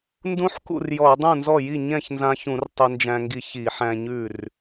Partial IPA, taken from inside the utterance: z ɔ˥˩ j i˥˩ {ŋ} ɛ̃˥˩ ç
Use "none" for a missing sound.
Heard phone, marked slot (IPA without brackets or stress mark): ɲ